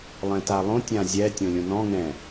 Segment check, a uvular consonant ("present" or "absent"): absent